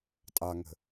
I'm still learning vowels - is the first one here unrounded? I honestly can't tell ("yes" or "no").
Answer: yes